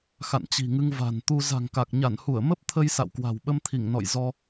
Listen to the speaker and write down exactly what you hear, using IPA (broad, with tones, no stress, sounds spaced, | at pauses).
x a̰˧˨ n t͡ɕ i̤˨˩ ŋ ɨ˧ ŋ v a̤˨˩ n t̪ u˧ z a̤˨˩ ŋ k a˨˩ k̚ ɲ a˧˩ n h u˧˩ ə̯ m ə˦˥ p̚ t̪ʰ ə˧ j s a̰˧˨ w k w a̤˨˩ w ɓ ə˧ m t̪ʰ i˧˩ ŋ n ɔ̰˧˨ j z ɔ˧